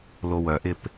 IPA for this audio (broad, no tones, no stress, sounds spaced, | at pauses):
l o w œ ʔ ɪ p